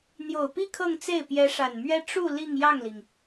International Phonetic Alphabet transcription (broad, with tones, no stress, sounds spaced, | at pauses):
n̪ j o˨˩ ʊ̯ p i˥˧ kʰ ɤ˥˧ ŋ t͡s e˥˩ ɪ̯ p j ɛ˧˥ ʂ a˨˩ n m ɥ ɛ˥ ʈ͡ʂ u˥˧ l i˥˧ ŋ j ɑ˥˩ ŋ l i˩ ŋ